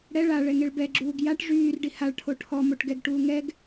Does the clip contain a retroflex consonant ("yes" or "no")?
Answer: yes